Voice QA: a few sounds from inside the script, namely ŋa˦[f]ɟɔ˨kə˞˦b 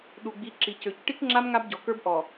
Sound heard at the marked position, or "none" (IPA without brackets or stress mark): b